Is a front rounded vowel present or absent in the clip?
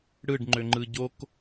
present